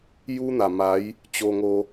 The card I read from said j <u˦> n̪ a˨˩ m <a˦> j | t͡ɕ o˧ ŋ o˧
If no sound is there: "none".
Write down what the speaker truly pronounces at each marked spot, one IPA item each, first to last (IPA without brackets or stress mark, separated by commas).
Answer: u˦, a˨˦